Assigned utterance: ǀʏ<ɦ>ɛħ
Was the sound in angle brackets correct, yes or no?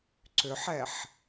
no